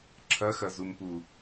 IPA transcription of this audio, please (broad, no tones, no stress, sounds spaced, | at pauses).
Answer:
ǁʰ ɐ x ɐ z u m p u